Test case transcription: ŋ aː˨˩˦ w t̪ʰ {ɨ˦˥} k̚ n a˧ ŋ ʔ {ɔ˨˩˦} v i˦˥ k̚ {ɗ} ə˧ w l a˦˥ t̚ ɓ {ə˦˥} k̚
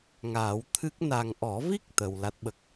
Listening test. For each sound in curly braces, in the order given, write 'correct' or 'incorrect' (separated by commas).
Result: correct, correct, incorrect, correct